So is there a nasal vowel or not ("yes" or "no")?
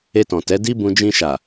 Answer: yes